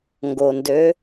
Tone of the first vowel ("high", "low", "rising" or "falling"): low